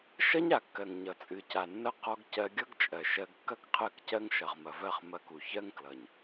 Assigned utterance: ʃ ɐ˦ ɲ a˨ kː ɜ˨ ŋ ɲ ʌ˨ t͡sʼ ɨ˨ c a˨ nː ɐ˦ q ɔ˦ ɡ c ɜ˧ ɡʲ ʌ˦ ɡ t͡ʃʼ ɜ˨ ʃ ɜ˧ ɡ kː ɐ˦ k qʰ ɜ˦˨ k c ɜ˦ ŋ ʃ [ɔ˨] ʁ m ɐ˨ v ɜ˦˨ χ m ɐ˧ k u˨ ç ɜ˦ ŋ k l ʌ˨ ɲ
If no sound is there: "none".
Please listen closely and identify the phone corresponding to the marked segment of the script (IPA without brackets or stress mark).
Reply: ʌ˨